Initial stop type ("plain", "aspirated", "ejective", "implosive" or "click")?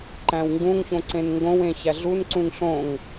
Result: click